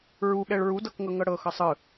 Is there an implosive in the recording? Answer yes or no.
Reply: yes